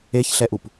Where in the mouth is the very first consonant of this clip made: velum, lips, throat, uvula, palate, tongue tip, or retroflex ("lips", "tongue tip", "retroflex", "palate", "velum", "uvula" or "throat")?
palate